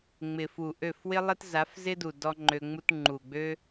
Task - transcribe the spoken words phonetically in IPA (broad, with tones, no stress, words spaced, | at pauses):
ŋ͡mɪ˨fu˨ʔø˦˨f wɪ˦lˠɪ˦t za˨˦fzɪ˦du˨ dɔ˦ŋ͡ǃø˧ŋ͡mu˦t ŋ͡ǃu˨ɡ͡bø˦